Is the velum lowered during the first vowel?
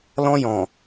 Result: yes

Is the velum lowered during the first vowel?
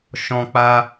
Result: yes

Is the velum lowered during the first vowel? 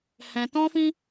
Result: yes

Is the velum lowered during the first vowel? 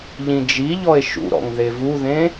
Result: yes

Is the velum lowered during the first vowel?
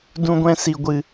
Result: yes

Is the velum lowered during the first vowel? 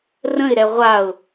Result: yes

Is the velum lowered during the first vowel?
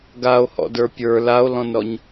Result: no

